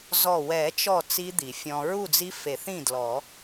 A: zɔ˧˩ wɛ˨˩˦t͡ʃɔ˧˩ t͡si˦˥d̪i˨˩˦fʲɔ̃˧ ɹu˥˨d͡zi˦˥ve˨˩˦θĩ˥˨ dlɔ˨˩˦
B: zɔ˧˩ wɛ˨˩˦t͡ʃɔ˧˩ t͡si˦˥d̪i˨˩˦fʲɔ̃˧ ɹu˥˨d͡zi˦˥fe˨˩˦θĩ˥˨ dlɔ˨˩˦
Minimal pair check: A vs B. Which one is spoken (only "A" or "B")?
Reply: B